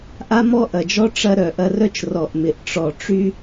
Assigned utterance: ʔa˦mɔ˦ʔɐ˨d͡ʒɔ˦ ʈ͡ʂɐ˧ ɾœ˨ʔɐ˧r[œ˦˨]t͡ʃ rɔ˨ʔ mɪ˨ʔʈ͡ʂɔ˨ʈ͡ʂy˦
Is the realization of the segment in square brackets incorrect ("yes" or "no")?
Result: yes